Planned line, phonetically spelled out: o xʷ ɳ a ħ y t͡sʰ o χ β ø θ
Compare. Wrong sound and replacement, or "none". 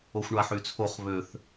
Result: none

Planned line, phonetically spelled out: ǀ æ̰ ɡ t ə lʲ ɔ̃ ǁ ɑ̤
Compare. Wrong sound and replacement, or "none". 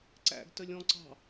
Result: ǁ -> ǀ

